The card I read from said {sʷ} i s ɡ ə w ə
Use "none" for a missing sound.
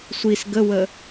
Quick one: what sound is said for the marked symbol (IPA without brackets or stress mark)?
sʷ